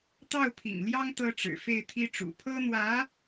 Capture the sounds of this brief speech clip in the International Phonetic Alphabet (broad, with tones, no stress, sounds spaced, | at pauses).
t̪ ɑ˥˩ ʊ̯ pʰ ḭ˨˩ ŋ l j ɑ˥ ŋ t̪ ɤ˥ ʈ͡ʂ ɻ̩˨˩ f e˥˩ ɪ̯ t̪ʰ i˥ ʈ͡ʂ ṵ˨˩ pʰ ɤ˥ n̪ w ä˧˥